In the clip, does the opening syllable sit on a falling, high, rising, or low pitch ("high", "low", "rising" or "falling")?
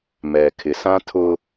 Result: low